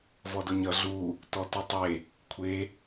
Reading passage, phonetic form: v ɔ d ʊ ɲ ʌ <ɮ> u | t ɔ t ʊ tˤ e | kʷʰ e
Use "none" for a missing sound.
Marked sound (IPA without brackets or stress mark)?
ɮ